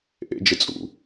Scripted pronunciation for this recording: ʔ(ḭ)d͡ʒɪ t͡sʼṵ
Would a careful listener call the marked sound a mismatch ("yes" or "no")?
yes